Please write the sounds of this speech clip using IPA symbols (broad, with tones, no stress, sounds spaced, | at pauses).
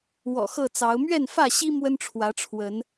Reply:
w ɔ̰˨˩ x ɤ˥˨ t͡s ɑ˨˦ ʊ̯ m ɥ ɛ˥˨ n f ä˥˨ ɕ i˦ m w ə˦ n ʈ͡ʂʰ w ä˨˦ ʈ͡ʂʰ w ə˨˦ n